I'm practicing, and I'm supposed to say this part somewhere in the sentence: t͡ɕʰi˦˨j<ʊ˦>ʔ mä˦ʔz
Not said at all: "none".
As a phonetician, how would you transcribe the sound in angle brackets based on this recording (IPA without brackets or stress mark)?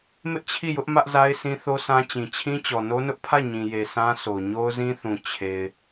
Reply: ʊ˦